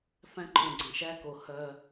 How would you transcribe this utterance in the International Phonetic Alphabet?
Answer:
f æ̃˦ ǃʰ ũ˨ ɡ͡ǀ ɛ̃˨ ʃ æ˦ k o˨ h œ˦

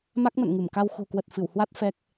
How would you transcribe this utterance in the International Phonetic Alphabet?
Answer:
m a˦˥ k̚ m ə̰˧˨ n ŋ ɨ˧˩ m k a˧ w x o̤˨˩ k w ə˨˩ t̚ f ɨ˧˩ w h w a˦˥ t̚ f ɛ˦˥ k̚

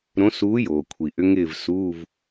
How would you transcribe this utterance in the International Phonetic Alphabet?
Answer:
ɾ õ˧˥ s uː˧˥ j oː˩ kʷʰ i˩ ʔ ʏ˧˥ ŋ ɪː˥˧ v s uː˧˥˧ v

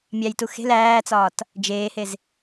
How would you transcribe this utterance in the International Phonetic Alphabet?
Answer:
mʲ æ j t u x e̤ l æː t͡s ɒː t | d͡ʒ eː h e z

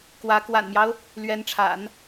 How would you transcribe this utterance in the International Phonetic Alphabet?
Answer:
k w ä˧˥ k w a̰˨˩ n m j ɑ˦ ʊ̯ | l ɥ ɛ˧˥ n ʈ͡ʂʰ a̰˨˩˦ n

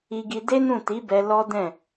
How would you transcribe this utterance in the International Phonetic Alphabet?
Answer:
i˧ ɡ i˧ d e˦ n ũ˦˨ t i˨˦ b ɛ˧ l ɔ˦ d ɛ̃˦˨

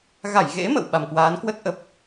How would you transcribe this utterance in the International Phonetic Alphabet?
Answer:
ɣ a˧˩ j ɣ ḛ˧˥ m ə̰˧˨ w ɓ a˨˩ m k w aː˨˦ n k w ə˦˥ t̚ ʔ ə˨˩ p̚

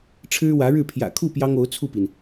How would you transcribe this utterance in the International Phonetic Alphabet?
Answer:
ʈ͡ʂʰ ɻ̩˥ w ä˧˥ ɻ ɻ̩˥˩ pʰ j ä̰˨˩ kʰ u˥˩ p j ɑ˥ ŋ o˧˥ ʊ̯ t͡sʰ u˥˩ p i˩ n

